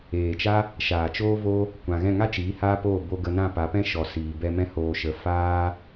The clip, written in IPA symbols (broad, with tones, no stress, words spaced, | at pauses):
eː˨t͡ʃa˦ | ʃaː˨t͡ʃoː˦ vo˦ | kʷã˨ɣɛ̃˦˨ ŋa˦t͡ʃiː˨˦ haː˦poː˦˨ bo˧ɡə˧nã˦˨ pa˨˦pɛ̃˦ʃɔ˨ siː˨ bɛ˧mɛ̃˦ hoː˧ʃə˧ faː˦